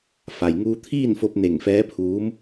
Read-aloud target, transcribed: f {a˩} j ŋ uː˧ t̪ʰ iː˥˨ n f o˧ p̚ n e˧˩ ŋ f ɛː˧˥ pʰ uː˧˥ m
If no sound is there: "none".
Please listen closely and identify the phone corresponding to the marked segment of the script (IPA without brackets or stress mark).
a˩